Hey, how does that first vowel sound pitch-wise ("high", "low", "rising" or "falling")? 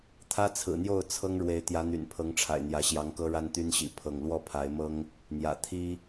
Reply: high